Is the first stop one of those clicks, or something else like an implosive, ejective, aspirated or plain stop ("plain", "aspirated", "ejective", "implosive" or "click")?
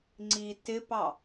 click